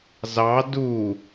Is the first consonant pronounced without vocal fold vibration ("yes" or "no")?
no